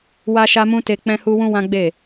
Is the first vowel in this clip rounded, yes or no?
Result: no